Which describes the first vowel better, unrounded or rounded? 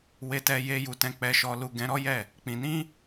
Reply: unrounded